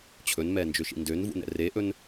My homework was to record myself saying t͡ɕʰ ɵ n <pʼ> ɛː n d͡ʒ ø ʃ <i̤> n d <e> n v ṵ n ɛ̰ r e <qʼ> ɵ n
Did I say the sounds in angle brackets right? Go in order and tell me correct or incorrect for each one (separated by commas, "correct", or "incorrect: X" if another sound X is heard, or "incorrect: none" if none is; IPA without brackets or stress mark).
incorrect: m, incorrect: ḭ, incorrect: ø, incorrect: ʔ